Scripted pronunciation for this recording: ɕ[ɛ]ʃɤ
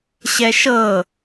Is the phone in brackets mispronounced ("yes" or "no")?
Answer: no